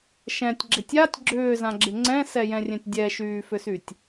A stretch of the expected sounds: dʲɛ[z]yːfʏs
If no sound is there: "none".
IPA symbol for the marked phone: ʃ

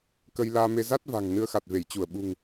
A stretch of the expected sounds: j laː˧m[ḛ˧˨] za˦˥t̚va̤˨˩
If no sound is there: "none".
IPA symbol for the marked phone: e˧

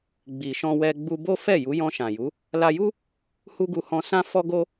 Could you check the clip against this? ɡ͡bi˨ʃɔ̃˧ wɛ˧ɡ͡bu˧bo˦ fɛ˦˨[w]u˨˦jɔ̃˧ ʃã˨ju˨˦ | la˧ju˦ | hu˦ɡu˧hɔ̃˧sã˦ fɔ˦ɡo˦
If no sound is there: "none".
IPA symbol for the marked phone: j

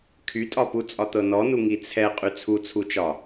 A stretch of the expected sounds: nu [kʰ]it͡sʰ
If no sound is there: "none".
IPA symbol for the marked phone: ŋ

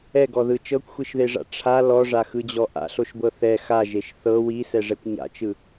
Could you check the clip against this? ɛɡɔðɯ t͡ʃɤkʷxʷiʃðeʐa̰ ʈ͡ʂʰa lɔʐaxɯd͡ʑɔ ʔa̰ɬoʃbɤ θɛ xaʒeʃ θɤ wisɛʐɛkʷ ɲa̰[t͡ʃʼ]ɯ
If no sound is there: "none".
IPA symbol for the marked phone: t͡ʃ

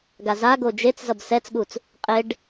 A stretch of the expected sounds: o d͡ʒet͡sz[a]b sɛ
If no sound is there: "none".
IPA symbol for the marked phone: ʌ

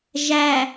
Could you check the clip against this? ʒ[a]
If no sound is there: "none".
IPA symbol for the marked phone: æ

